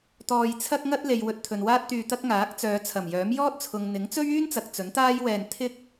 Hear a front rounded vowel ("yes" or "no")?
yes